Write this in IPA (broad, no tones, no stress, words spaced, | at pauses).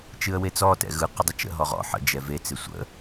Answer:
t͡ʃɨə̯wet͡sɔ tɛ̰ɣɯ qədˤɪt͡ʃə̰ ɦɔʁɔ̰ ħə̰ d͡ʒɛve t͡sɪsʷə̰